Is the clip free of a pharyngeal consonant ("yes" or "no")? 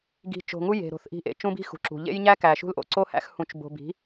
yes